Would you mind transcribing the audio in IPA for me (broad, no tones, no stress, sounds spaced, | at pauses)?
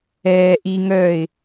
ɛː ʔ i ŋ œː ɪ̯